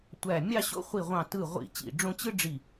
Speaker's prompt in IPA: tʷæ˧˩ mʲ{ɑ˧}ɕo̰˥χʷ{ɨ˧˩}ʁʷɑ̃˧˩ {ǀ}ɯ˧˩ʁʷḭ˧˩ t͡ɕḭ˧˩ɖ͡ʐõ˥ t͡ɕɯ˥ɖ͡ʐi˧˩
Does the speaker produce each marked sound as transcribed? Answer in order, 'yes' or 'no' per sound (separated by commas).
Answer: no, no, no